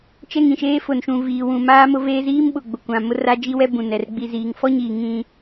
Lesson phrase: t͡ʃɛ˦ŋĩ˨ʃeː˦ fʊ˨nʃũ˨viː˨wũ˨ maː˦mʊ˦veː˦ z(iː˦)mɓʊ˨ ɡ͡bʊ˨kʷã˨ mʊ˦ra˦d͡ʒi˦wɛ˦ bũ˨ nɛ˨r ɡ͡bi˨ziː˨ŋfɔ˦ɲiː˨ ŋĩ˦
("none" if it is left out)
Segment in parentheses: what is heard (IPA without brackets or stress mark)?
iː˦